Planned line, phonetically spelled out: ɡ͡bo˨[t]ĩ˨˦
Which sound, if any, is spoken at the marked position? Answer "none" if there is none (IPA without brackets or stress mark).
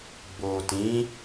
t